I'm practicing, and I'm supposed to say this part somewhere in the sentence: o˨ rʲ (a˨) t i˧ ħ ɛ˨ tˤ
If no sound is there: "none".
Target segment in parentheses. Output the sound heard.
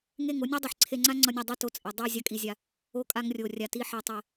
a˨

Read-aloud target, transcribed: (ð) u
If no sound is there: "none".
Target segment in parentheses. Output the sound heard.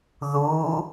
ð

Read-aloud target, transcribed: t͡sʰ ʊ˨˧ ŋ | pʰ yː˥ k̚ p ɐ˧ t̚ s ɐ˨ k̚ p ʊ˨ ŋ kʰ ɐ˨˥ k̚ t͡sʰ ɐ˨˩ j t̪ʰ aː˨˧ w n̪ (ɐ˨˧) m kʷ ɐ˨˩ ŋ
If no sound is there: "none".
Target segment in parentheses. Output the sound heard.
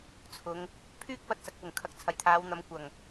ɐ˨˧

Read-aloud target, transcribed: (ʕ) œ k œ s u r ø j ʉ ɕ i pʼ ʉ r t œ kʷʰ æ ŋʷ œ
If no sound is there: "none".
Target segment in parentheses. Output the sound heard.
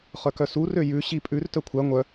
χ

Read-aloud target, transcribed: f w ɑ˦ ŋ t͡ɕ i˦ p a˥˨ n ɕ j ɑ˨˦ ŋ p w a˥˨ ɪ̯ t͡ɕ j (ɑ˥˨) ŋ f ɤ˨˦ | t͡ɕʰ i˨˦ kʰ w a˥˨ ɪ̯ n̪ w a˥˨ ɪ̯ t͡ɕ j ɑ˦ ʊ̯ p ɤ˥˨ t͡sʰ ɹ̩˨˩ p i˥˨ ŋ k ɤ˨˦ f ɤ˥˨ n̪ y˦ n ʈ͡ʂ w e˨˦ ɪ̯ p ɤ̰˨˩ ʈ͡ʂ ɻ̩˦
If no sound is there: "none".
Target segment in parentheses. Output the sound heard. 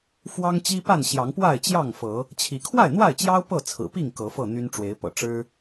ɑ˥˨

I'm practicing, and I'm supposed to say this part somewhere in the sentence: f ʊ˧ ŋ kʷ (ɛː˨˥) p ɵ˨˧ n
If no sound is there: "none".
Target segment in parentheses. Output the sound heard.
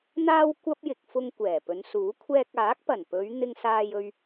ɛː˨˩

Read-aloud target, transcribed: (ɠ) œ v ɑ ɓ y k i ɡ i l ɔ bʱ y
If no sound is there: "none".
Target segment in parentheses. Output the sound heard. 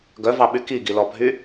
ɡ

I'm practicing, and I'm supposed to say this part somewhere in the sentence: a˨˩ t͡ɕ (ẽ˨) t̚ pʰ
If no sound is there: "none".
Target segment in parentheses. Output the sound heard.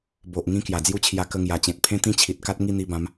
ẽ˨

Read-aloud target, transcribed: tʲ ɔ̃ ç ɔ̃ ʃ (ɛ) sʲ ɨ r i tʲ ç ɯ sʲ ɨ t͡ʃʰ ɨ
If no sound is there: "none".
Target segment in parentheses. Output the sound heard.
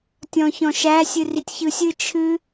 æ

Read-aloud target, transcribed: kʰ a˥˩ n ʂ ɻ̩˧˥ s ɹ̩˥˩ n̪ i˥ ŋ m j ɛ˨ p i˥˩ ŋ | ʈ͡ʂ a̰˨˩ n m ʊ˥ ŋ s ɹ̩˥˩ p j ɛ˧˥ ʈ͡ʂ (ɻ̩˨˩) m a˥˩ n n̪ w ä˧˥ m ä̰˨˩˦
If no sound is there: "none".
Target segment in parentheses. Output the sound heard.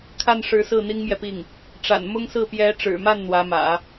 ɻ̩˨˩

